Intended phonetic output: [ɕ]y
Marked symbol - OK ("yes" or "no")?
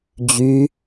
no